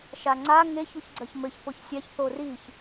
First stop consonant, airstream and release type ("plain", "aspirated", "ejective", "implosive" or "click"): click